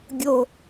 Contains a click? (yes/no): no